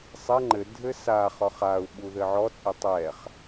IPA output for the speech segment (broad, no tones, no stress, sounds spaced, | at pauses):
sˤ ɛ ŋ͡ǃ ɘ dʱ ɘ s a χ ɔ χ a u̯ ɓ u ð ɘ ʕ ɔ t͡sʼ ɛ tˤ ɛ χ